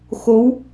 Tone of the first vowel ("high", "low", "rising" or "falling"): rising